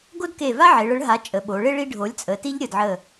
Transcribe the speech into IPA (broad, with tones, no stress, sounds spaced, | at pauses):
ɡ o˦ d k e˧˩ v a˦ ʕ e˩˧ ɭ ə˩˥ ɭ ɦ a˩˥ t͡ʃʼ ə˩˧ ɓ o˩˧ ɭ e˦ ɭ i˦ ɖʱ o˩˥ lʲ t͡sʼ ə˩˧ t i˦ ʎ ɾʲ ə˧˩ d ʕ ə˧˩